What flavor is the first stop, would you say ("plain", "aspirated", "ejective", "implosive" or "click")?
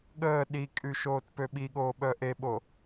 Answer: implosive